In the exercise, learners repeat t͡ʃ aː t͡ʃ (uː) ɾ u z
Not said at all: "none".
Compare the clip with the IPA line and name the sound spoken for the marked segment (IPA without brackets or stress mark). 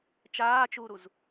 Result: uː